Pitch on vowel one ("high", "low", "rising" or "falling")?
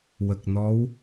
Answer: low